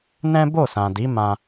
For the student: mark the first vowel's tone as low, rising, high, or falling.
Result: high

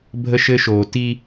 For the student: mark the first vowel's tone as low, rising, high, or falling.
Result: high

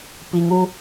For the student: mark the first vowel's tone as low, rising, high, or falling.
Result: low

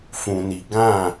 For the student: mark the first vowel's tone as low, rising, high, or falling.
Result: low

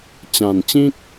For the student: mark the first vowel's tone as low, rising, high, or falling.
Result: low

